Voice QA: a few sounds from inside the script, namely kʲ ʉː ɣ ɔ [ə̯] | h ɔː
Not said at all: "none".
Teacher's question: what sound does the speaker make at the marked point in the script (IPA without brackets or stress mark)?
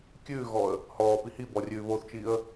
ə̯